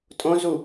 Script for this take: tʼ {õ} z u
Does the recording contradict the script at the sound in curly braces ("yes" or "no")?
no